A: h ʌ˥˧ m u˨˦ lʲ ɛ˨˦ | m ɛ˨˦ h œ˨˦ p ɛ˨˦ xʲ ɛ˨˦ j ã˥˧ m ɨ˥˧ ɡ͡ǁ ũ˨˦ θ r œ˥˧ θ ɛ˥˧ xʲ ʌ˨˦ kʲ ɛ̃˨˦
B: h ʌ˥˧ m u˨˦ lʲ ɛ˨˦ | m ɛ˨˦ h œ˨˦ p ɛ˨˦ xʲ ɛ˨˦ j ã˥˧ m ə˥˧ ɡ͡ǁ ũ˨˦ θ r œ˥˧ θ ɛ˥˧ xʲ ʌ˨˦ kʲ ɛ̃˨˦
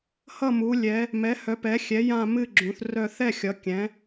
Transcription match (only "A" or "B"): A